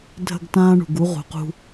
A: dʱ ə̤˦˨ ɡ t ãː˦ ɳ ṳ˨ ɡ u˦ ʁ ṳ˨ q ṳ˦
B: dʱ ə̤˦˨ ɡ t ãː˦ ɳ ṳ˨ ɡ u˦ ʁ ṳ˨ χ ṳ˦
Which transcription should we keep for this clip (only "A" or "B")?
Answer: A